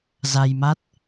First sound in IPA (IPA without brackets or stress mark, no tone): z